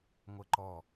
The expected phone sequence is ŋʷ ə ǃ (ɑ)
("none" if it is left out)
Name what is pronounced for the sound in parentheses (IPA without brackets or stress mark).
ɔ